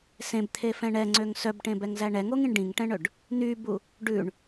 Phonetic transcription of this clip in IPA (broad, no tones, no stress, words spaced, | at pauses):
sẽbt̪ʰefɛ̃ ɳɛŋ͡ǀøŋ sœbʈẽbɛŋzæ ɳɛŋoŋĩɳ ɖĩŋʈɛ̃ɳɵɖ | n̪ybu | ɖʉɳ